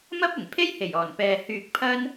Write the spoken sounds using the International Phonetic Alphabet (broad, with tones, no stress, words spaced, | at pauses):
mɐ˥p̚ɪ˨˩ŋpʰe˥jhe˨˩j ɔː˨˩npɛː˨ hyː˨k̚ pʰɐ˥n